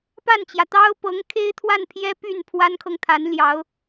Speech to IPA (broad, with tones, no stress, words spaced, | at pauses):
pa˥˩nt͡ɕjä˩ t̪ɑ˥ʊ̯pɤ˧˥ŋ kʰe˥ɪ̯t̪ʰwa˥˩npʰjɛ˥ py˥˩n pʰwa˥nkʰɤ˨ŋt̪ʰa˧˥nljɑ˧˥ʊ̯